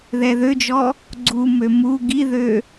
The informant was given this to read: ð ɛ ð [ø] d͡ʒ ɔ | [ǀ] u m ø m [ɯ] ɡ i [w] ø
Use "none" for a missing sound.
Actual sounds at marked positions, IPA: ø, ɡ͡ǀ, u, ð

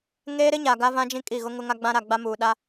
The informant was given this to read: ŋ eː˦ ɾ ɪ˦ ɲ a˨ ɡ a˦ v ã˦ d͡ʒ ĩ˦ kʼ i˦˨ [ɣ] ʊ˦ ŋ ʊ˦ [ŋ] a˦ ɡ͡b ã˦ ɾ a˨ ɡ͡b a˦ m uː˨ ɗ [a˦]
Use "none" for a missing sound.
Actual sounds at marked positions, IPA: ɣ, ŋ, a˦

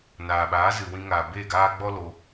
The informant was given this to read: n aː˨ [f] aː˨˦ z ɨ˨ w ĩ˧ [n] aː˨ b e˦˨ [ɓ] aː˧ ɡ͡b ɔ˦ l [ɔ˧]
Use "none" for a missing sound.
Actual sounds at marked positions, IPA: ɓ, ŋ, ɡ, o˧

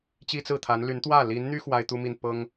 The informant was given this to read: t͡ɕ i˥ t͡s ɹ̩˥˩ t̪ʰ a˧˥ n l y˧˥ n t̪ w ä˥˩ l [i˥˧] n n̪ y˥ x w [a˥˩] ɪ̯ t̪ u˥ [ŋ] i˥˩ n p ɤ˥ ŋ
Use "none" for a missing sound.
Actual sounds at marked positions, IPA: i˧˥, a˥, m

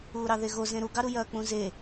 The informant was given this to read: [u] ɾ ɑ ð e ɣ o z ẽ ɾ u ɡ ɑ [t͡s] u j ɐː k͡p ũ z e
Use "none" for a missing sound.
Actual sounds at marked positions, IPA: uː, ɾ

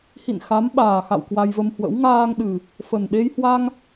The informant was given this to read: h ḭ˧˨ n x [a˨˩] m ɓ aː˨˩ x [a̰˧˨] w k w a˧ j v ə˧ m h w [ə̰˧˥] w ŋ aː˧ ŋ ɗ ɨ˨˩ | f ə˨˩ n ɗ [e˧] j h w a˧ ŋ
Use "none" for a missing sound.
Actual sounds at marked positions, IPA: a˨˦, a̰˧˨, ə̰˧˥, e˧

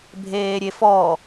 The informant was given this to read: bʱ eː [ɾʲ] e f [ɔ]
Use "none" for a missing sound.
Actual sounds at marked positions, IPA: ɾʲ, ɔ

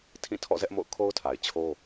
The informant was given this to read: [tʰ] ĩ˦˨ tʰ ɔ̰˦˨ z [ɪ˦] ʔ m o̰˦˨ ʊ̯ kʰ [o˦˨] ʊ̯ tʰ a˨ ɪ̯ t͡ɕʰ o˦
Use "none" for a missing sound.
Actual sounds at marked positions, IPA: tʰ, ɛ˦, o˦

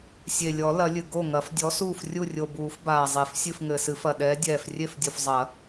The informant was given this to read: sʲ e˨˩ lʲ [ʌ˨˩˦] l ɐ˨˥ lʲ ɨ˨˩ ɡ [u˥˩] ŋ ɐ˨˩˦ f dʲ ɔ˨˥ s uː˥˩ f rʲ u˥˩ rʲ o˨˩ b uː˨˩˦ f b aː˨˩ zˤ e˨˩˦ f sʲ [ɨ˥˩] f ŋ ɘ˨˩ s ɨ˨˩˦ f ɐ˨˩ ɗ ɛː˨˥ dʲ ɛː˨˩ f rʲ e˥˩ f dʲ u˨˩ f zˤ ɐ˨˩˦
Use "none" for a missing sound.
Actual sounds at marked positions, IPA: ɔ˨˩˦, o˥˩, ɨ˥˩

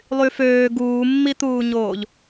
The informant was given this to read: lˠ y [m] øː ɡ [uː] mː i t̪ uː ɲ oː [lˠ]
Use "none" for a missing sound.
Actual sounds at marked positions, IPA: f, uː, ʎ

